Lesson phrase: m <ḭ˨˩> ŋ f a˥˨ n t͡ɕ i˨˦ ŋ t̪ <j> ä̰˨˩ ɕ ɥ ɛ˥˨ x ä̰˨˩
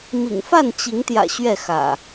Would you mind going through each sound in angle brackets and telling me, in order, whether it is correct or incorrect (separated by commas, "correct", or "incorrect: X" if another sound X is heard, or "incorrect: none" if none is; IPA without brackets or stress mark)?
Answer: correct, correct